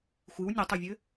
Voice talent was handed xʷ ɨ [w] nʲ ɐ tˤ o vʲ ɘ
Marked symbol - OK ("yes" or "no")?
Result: yes